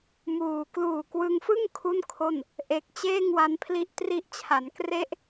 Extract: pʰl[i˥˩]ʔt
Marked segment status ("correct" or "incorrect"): incorrect